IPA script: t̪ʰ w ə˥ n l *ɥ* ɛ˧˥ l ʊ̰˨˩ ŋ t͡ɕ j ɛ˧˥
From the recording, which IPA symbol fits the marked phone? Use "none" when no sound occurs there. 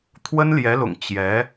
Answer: j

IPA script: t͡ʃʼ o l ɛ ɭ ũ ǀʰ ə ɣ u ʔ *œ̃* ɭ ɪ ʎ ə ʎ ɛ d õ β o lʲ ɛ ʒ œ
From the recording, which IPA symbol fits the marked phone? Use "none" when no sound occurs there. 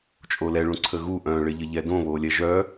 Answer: œ̃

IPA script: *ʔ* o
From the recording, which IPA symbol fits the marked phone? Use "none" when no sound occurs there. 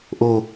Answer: ʔ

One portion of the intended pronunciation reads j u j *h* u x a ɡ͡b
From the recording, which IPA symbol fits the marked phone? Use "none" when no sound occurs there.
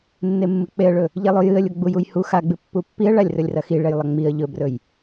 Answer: h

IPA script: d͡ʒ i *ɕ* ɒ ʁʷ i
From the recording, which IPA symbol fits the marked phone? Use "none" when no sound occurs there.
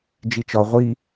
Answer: t͡ʃ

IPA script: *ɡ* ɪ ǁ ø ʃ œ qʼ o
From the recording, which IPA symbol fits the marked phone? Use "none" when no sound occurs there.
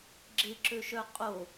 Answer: ɡ͡ǁ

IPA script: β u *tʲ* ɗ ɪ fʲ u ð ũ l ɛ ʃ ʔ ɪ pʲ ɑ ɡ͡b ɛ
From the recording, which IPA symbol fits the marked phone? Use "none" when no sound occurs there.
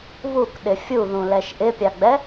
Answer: k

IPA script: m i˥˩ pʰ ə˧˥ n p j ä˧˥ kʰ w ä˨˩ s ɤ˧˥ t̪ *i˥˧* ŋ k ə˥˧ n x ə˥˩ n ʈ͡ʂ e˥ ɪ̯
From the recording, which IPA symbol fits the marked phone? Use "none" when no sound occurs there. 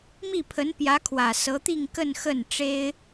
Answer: i˥˧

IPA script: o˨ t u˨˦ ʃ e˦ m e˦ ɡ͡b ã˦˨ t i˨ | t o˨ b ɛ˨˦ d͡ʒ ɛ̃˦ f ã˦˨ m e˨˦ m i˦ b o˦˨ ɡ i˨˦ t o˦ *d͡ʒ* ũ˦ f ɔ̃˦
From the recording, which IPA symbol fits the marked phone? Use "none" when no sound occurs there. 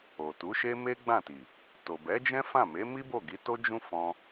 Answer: d͡ʒ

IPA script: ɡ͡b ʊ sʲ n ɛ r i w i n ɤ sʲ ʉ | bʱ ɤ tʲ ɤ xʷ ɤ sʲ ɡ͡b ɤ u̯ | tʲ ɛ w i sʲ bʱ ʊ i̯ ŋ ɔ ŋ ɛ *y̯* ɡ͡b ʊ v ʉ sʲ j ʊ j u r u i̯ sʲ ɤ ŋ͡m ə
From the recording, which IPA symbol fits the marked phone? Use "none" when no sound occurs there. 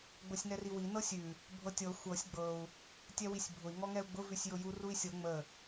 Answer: u̯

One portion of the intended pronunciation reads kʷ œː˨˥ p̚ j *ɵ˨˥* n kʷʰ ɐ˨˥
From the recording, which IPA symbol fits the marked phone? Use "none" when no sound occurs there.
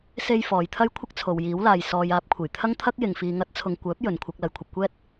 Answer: ɵ˨˥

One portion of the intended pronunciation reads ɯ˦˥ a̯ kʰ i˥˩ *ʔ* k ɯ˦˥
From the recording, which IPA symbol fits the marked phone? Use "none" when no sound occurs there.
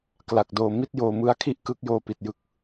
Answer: ʔ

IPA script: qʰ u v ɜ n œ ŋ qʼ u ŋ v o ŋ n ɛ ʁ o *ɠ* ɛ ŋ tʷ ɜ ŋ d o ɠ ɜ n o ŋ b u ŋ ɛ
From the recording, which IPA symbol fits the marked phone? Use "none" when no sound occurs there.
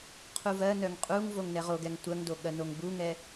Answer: ɡ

